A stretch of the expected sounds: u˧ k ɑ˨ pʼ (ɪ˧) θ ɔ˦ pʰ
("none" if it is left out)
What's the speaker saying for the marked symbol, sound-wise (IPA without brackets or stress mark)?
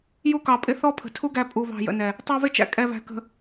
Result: ɪ˧